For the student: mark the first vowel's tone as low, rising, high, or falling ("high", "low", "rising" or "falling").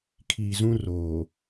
low